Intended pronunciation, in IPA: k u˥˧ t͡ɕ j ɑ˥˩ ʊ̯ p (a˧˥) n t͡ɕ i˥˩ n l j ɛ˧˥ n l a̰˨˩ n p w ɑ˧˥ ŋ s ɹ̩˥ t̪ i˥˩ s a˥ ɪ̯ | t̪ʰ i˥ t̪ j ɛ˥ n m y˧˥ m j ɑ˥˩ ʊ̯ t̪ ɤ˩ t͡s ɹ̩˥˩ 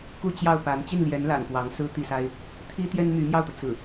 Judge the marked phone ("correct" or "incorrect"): correct